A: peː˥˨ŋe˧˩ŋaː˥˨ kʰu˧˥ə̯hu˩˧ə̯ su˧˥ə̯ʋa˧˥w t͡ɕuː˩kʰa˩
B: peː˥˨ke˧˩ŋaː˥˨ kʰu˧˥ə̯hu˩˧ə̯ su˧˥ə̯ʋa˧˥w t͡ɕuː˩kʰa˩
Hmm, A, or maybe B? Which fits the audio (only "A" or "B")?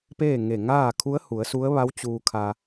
A